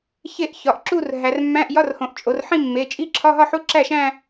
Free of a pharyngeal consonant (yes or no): no